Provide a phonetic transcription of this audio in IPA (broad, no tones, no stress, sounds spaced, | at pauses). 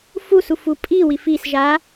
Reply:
f u s u f u pʼ i w i f i s ʒ a